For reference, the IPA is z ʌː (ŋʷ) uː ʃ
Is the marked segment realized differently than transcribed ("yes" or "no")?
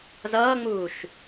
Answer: yes